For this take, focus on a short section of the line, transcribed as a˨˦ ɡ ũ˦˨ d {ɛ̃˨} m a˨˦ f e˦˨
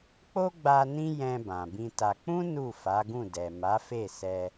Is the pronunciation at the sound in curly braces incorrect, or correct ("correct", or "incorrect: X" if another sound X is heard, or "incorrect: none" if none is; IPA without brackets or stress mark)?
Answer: incorrect: ɛ˨